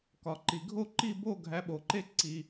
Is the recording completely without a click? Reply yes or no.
no